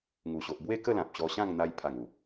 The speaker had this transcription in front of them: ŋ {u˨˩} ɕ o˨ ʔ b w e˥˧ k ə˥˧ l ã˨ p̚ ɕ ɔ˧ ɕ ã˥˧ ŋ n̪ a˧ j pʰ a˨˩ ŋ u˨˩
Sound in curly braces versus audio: correct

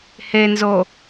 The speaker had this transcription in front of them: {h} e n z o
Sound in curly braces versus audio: correct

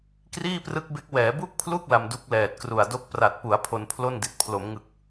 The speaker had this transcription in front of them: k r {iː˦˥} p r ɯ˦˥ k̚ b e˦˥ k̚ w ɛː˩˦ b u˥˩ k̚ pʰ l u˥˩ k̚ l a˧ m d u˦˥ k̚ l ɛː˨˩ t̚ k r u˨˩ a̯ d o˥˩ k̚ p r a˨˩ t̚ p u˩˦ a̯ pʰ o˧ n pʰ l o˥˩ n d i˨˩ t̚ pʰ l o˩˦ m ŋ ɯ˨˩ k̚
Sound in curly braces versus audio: incorrect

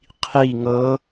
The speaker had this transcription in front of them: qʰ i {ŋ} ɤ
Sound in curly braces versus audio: correct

